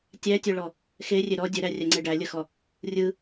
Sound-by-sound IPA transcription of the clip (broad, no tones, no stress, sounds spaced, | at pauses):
tʲ æ tʲ œ ɭ ɔ | x e rʲ e ɾ ɔ dʲ œ ɾ æ rʲ æ ŋ͡ǀ e ɖ æ lʲ ə x ɔ | rʲ ɯ